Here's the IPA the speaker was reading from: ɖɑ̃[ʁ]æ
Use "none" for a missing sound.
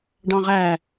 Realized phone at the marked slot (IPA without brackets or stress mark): ʁ